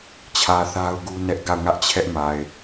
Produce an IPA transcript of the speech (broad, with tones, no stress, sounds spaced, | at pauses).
t͡ɕʰ ä˨ θ a˦ ʊ̯ ɡ u˦ n ɛ˦ ʔ ɡ a˦˨ ʊ̯ ŋ ä˦ ʔ t͡ɕʰ ɛ˦ ʔ m a˨ ɪ̯